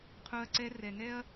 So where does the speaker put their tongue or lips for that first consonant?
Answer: uvula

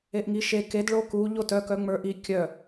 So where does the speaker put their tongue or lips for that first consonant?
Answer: throat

